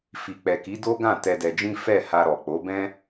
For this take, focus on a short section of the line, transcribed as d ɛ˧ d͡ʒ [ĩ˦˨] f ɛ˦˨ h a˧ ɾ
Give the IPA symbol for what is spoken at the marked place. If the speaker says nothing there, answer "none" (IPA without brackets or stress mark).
ĩ˦